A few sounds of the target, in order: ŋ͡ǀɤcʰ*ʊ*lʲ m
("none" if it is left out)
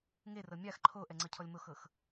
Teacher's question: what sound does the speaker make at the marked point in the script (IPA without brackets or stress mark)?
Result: ɔ